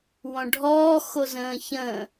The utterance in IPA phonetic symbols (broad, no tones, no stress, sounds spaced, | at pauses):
w ɔ̃ ɖʱ ɔː x o z ə̃ː ç ə̃ː